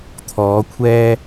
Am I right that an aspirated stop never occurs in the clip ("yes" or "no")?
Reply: no